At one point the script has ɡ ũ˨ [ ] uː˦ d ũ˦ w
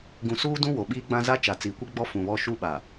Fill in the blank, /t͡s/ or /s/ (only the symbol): s